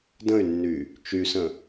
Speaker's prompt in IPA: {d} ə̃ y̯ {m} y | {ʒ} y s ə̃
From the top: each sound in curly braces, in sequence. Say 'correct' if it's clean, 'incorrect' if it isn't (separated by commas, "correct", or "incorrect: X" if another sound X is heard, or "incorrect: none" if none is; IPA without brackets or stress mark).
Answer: correct, incorrect: nː, incorrect: t͡ʃ